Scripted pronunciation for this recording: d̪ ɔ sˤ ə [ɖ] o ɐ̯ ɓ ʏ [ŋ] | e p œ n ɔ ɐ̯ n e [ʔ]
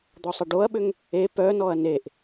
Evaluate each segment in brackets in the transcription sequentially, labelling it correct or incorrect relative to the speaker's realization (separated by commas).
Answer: correct, correct, correct